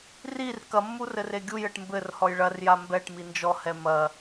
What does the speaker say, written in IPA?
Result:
r i r k ɐ mː u r ɘ r e ɡʲ u j ɘ ʈ m b ɘ r h ɔ j ɭ ɐ r j a m b ɛ ʈ m i n d͡ʒ ɔ h ɛ m ɐ

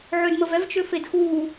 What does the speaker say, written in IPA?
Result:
ʕ ø d m ə v ɛ v t͡ʃ ø f e d x uː

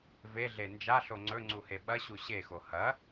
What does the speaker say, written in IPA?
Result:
v e ɮ e n d͡ʒ a ɬ o ŋ͡ǀ ɵ ŋ͡ǀ u h e ɓ ɐ ɕ u ɕ e x o h ɐ

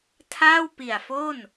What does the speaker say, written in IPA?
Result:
tʰ aː˥˩ w p i˨˩ a̯ f o˥˩ n

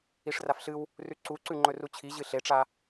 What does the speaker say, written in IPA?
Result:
i ʂ r a f ɬ ɨ w | r ʉ ǀ u ǀ ʉ ŋ͡ǃ ɵ r u t͡ɕʰ i ʑ ɨ ɬ e ʈ͡ʂ a

